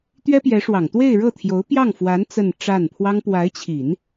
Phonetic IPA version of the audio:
t̪ɥɛ˥pjɛ˧˥ʂwɑ˨˩ŋ t̪we˥˧ɪ̯ɻɤ˥˩t̪ʰjo˧˥ʊ̯ pjɑ˥˩ŋfwa˧˥n t͡sə˥˧nʈ͡ʂa˥˩n pʰwɑ˥ŋ pwa˧˥ɪ̯t͡ɕʰi˨˩˦n

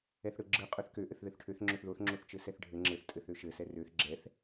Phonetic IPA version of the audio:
ɛθɽɯɡ͡ǁɯ qʼøθkø ʔɘθðɘθʈʰøθ ŋ͡ǁøθðoθ ŋ͡ǁoθt͡ʃɘsɛθɖʱɘ ŋ͡ǁɘθ tʼɘθøʃɘ sɛrøθ ɡ͡ǁɛθ

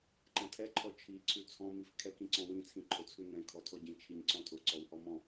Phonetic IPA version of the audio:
ǃɛ̃tʰɛ ǃʰɔt͡ʃʰi ǀʰʉt͡sʰɔ̃ mifkʰɛ kĩǀɔ̃wĩ t͡sʰĩǃʰʊ t͡sʰʉnɛ̃ kʰɔtʰɔɟĩ t͡ʃʰiɲǀɔ̃tʰʊ ǀɔwhɔmɔ̃

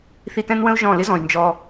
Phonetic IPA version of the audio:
θi˧tɛ̃˦nwə̃˦u̯ ʒɔ̃˦˨ lɪ˦zɔ̃˨y̯ nd͡ʒɔ˧

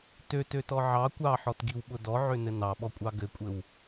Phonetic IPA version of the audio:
tøtøtɔ ʕɑ kʷɑħɔtɡiwɓʊ dɔʕønɘ nɑɓɔkʷʼɑ ɡɘkʷʼɘw

